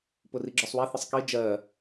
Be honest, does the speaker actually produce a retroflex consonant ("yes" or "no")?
no